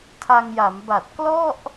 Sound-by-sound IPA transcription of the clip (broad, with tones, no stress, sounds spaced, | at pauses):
tʰ a˧ ŋ j a˩˦ m b a˨˩ t̚ k l ɔ˥˩ ʔ